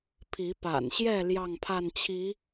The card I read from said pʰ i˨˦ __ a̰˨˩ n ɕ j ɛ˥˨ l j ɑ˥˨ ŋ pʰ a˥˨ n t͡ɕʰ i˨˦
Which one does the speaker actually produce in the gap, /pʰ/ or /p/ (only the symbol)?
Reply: p